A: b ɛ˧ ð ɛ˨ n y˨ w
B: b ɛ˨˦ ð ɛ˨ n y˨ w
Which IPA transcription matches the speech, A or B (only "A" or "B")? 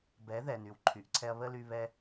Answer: B